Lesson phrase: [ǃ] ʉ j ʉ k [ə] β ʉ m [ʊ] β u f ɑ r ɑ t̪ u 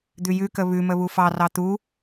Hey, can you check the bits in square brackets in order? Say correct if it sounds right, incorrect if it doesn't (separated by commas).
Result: incorrect, correct, incorrect